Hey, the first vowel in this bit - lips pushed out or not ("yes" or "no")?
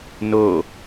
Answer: yes